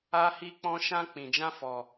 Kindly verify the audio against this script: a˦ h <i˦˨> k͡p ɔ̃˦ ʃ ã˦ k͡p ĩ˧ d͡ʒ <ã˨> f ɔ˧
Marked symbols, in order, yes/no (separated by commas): no, no